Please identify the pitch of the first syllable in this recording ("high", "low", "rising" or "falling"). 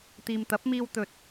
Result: low